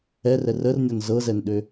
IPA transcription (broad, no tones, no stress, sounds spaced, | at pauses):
ɛ r ɛ r ə r nʲ ɔ n z ɤ z ɛ n ɗ ø